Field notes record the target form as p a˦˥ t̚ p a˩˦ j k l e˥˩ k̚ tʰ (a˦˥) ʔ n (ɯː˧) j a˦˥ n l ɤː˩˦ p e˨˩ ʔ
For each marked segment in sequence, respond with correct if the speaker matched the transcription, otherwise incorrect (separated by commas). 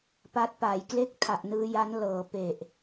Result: incorrect, correct